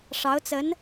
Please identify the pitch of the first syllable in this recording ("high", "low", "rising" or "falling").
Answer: rising